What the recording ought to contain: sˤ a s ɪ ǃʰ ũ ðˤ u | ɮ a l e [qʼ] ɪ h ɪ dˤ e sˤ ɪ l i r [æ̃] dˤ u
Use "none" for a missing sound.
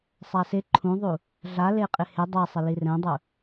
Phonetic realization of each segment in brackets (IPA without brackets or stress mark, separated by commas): qʼ, ɛ̃